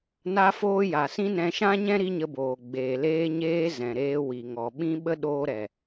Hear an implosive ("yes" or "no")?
yes